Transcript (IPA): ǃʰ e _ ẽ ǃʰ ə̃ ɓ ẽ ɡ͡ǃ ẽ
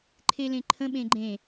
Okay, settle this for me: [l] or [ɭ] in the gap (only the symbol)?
l